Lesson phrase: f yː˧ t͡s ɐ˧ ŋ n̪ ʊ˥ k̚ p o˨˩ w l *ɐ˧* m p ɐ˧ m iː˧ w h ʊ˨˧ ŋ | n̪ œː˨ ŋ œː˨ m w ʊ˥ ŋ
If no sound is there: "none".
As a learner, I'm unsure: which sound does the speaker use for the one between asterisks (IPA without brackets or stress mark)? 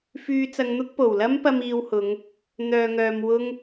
ɐ˥